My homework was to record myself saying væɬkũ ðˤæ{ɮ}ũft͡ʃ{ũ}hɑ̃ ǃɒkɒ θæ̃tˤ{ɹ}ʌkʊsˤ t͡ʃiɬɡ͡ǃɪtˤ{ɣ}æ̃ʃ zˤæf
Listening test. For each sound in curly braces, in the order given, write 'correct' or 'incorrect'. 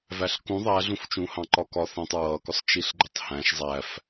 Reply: correct, correct, correct, incorrect

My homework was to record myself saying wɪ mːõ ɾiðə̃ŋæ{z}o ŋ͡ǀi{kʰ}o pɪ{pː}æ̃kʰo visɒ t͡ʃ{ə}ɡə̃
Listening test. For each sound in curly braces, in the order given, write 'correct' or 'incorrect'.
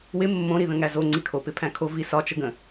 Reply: correct, correct, incorrect, correct

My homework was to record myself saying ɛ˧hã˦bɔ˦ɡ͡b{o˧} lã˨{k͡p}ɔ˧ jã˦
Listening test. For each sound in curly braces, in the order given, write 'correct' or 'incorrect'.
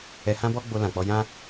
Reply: correct, correct

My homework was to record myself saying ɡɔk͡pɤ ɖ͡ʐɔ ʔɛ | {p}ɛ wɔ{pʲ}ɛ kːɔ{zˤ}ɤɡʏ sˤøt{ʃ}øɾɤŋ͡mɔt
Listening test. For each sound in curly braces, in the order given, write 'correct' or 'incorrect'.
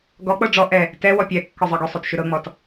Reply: incorrect, correct, correct, correct

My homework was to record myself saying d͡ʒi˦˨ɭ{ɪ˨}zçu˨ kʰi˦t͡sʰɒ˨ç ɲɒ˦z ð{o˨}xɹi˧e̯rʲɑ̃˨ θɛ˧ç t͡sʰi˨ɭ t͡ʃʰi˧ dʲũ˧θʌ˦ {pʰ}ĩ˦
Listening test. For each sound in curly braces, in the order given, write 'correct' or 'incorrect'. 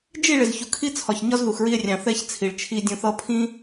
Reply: correct, incorrect, correct

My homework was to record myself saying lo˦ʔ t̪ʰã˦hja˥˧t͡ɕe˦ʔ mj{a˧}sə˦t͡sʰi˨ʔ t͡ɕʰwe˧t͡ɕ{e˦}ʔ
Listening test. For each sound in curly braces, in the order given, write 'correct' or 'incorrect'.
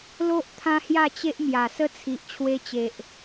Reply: incorrect, incorrect

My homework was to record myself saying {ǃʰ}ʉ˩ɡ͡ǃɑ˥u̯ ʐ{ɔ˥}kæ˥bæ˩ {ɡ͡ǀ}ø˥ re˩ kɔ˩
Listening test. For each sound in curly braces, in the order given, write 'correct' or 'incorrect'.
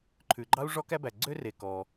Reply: correct, correct, correct

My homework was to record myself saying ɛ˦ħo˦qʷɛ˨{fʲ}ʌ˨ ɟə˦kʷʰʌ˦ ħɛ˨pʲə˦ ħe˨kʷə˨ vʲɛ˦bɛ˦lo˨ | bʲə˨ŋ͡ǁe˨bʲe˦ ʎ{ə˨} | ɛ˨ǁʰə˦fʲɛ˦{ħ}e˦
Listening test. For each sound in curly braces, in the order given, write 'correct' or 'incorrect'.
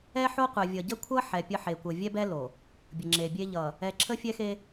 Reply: incorrect, incorrect, incorrect

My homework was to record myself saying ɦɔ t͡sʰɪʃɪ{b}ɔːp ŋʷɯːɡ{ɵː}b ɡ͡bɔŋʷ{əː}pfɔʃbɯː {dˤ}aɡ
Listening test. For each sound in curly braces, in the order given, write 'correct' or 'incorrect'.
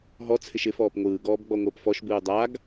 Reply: incorrect, incorrect, correct, correct

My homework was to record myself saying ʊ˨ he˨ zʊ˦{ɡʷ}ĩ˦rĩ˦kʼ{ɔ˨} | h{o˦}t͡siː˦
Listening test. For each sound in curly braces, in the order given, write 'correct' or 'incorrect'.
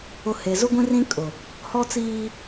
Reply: correct, incorrect, incorrect

